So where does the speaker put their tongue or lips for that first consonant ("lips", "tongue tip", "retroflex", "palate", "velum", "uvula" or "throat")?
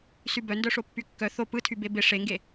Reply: tongue tip